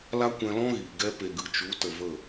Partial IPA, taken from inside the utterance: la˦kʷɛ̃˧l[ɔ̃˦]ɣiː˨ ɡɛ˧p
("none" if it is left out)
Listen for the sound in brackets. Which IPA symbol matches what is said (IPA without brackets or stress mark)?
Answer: ɔ̃˦